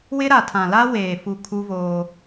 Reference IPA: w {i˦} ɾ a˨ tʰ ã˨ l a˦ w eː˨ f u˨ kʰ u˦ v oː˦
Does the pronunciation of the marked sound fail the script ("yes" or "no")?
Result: yes